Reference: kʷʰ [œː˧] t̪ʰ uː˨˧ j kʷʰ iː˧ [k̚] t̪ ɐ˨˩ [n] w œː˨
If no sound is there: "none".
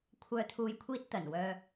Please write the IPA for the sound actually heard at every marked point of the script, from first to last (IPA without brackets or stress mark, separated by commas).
œː˨, t̚, n